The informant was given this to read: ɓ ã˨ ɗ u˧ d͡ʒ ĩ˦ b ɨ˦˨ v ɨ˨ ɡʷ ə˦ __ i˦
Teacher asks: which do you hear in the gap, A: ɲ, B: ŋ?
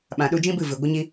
A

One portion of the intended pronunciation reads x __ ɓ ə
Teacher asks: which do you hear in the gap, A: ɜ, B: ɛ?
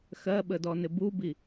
A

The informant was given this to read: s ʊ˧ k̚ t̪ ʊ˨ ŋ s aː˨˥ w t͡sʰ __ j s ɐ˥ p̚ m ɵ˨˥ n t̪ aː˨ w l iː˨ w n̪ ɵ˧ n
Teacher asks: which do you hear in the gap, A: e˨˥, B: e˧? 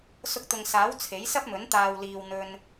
A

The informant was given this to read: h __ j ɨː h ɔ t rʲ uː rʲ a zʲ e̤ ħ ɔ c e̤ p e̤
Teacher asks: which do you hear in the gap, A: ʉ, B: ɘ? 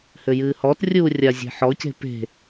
B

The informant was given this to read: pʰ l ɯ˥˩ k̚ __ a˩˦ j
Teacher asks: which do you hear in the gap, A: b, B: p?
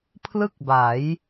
A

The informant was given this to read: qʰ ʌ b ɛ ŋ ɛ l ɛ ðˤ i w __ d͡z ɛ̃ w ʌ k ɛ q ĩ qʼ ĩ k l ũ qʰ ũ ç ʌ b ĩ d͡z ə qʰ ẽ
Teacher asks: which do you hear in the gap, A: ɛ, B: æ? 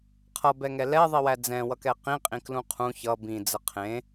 B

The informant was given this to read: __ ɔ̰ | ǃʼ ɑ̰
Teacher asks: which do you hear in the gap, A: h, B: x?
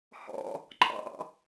A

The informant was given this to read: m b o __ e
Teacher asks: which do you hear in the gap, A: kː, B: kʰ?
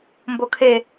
B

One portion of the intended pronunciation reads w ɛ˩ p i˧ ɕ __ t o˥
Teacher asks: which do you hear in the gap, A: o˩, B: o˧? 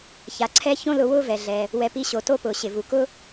A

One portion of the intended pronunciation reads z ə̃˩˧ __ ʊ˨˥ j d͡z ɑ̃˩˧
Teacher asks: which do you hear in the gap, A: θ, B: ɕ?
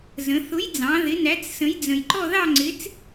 A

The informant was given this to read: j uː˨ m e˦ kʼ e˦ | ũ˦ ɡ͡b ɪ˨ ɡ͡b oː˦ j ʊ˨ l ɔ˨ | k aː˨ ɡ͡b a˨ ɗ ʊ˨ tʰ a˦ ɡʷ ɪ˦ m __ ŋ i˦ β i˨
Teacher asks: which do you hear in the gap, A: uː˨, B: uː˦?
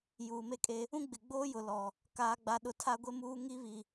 B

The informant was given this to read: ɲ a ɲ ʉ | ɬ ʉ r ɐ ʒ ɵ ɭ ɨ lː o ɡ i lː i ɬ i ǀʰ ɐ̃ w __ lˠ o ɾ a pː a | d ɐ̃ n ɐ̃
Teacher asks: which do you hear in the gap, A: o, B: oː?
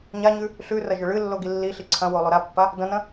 A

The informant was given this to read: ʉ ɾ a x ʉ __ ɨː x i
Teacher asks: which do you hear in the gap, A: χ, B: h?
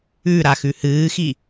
B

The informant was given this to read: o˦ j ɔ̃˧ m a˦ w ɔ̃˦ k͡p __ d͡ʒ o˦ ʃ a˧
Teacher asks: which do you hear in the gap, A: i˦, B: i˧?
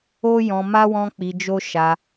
B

